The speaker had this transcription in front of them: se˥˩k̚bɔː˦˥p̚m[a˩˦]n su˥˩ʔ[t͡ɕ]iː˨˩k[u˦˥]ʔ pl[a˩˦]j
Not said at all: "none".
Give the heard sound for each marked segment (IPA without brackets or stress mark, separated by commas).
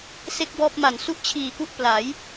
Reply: a˨˩, t͡ɕʰ, u˥˩, a˩˦